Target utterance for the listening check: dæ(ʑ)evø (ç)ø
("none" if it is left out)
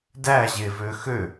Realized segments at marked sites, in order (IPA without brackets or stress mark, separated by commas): ʑ, x